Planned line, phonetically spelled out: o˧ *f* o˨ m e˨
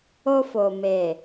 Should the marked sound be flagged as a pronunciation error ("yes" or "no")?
no